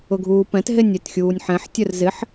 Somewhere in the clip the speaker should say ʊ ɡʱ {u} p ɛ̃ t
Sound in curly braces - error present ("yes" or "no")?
yes